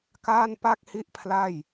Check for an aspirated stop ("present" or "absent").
present